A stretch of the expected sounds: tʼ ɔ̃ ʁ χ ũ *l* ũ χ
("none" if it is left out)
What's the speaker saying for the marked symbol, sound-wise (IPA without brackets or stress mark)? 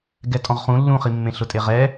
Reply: lː